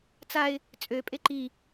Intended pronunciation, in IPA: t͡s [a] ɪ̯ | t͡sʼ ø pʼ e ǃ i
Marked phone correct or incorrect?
correct